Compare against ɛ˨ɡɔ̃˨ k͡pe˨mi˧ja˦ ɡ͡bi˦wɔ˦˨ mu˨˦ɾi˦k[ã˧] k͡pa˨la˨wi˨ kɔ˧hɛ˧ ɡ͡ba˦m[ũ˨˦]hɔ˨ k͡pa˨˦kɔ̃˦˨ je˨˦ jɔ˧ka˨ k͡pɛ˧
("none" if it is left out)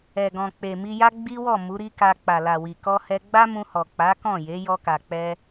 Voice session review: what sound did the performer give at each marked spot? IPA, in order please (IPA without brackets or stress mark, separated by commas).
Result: a˧, ũ˧